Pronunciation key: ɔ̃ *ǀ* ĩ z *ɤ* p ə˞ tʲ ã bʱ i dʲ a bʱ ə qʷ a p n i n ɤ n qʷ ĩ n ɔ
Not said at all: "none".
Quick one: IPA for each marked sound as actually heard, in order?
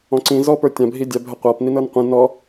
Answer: ǀ, ɔ

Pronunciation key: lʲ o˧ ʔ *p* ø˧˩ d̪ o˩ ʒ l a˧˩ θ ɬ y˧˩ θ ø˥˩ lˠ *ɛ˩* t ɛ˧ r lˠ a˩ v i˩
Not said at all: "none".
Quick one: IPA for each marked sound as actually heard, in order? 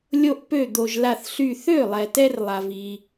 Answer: p, ɛ˩

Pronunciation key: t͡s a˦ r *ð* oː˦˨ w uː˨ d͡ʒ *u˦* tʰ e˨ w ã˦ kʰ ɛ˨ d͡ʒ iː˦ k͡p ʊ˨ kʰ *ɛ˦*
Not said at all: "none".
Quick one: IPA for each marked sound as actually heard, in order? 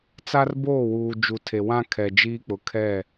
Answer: b, u˨, ɛ˦˨

